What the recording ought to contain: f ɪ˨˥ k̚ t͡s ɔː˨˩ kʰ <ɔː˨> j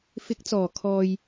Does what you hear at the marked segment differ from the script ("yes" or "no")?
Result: no